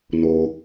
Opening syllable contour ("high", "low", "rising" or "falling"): low